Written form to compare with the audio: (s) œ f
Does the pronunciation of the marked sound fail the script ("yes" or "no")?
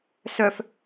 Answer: no